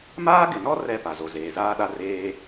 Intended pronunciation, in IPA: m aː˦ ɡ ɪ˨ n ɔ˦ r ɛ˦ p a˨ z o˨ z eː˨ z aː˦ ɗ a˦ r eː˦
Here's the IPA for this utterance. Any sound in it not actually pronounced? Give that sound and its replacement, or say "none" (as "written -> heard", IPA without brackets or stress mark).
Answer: none